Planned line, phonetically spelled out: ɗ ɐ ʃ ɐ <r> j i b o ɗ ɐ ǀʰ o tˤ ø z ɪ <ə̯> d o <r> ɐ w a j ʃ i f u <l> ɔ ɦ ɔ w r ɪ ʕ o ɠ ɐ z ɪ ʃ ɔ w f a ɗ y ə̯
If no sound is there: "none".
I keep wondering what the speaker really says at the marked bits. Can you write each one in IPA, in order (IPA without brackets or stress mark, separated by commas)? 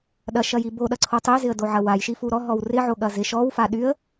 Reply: none, ə̯, ʕ, ɾ